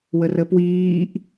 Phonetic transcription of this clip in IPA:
wərəpwiːʔ

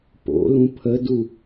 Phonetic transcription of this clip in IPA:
po̰lũ pʰədu

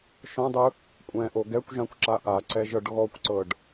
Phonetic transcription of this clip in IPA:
ʃɔ̃dˤɯ | kʷʼɛ̃ʔo ɡɛkʷʒãkʷǁa ʔaǀɛʒɤɖ ɣɔkʷǀɤɖ

